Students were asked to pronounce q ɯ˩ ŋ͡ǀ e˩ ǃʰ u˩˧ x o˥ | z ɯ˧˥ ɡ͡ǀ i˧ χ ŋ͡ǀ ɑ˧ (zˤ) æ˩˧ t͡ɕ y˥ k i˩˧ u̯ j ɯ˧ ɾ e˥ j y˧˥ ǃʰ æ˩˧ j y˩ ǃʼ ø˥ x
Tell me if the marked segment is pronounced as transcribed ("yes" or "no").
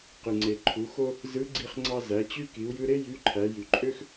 no